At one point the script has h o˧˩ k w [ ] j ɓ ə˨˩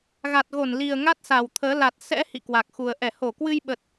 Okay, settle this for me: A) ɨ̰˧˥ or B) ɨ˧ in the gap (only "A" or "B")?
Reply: B